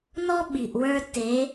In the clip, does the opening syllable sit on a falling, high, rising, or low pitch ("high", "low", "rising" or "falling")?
high